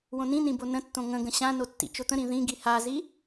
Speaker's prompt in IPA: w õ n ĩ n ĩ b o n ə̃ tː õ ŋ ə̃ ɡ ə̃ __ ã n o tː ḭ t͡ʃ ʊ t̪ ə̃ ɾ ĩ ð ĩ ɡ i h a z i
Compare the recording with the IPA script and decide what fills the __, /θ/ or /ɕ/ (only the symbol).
ɕ